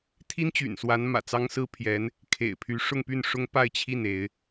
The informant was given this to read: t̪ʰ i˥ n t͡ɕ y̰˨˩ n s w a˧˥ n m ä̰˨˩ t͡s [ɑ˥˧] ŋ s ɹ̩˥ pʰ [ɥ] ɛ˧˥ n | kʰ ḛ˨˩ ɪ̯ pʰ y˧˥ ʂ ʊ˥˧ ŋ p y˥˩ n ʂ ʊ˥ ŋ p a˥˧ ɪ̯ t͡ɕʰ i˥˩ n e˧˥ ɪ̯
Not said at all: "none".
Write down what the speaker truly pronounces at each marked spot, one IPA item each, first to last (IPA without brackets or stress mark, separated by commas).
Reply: ɑ˥, j